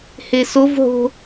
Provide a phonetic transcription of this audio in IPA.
h e s o v ɦ o̤

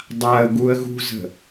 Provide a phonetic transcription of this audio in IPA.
dˤ a ə̯ ɡ u ə̯ ɣ ṳ z ə̤

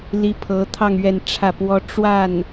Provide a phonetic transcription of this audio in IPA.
l i˥ pʰ ɤ˧˥ t̪ʰ ɑ˥˧ ŋ ɥ ɛ˥˧ n ʈ͡ʂʰ ä˥˩ p w ɔ˥ ʈ͡ʂ w a˥˩ n

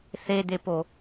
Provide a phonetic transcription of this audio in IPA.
θ e d̪ e p o

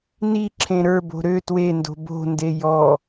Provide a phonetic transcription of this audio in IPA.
n i ǁʰ ẽ ɾ ə˞ b o̤ ɾ ø t w e n d o̤ b o̤ n d e j ɔ

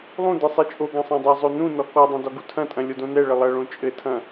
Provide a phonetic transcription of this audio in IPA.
lˠ ũ d ɘ sˤ i t͡ʃʼ o ɡ ɐ̃ sˤ ɐ̃ dˤ ɐ zˤ o n ũ n ɔ k ɔ dˤ ɐ̃ d ɔ ɡ u tʰ ɐ̃ tʼ ɐ̃ lʲ o d õ n ɛ ɭ ɘ lˠ ɐ ɭ õ t͡ʃʼ ɘ tʰ ɐ̃

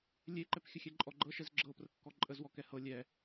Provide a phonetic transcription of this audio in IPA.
lʲ e ǃ ɛ p xʲ ə xʲ ɛ ǃʼ ɔ ɡ͡ǃ ɤ ʃ ɛ z ɡ͡ǁ ɤ p r ə kː ɔ ǃʼ ə z w ɔ k ɛ h ɤ lʲ ɛ

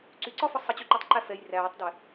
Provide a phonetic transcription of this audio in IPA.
ǀ y ǀ ɒ f ɒ sˤ ʌ t͡ɕ y ǃ u tˤ ǃ æ f ɛ j r æː tˤ d ɛ

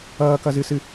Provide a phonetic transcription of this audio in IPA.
ʌː k ʌ z ɨ s ɨ

